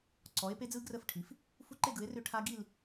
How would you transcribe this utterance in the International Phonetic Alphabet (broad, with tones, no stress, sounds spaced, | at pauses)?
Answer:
ǀ ɔ˩˥ e̯ p e˦˥ d͡z ɯ˦˥ ɡ r ə˦˥ f ʈʰ i˩˥ f | f u˦˥ ǃ e˥˧ ɡ ɯ˩˥ e̯ r ʏ˦˥ ʈʰ a˦˥ ɡ i˥˧ l